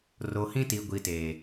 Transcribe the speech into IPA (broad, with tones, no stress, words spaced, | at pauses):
ro˨hĩ˦ti˨ ɡʷi˨teː˨